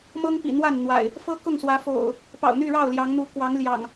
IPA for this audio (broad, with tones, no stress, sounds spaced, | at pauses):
m ɤ˦ ŋ p ḭ˨˩ n̪ w a˥˨ n n̪ w a̰˨˩ ɪ̯ | f ɤ˦ k ʊ˥˨ ŋ s w ä˨˦ f o̰˨˩ ʊ̯ | p ɑ̰˨˩ ʊ̯ n̪ y˥˨ ɻ ɑ˥˨ ʊ̯ l j ɑ˨˦ ŋ n̪ u˨˦ k w ɑ˨˦ ŋ l j ɑ̰˨˩ ŋ